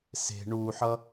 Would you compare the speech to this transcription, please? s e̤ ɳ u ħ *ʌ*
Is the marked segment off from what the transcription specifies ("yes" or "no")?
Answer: no